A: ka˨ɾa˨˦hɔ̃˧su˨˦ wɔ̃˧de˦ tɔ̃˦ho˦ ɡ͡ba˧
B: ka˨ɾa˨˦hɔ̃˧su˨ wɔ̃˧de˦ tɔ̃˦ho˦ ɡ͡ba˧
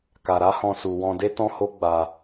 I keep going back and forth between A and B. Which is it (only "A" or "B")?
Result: B